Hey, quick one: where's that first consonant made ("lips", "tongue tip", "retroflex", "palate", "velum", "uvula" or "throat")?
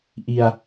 throat